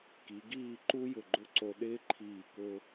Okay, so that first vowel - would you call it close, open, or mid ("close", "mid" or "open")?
close